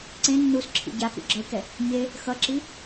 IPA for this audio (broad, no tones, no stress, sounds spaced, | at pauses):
ǀ ẽ nː u s ǁʰ ḭ ɟ a k ṵ ɡ͡ǁ ʌ ɪ̯ k ɛ | ɲ e | x ʌ ǁ i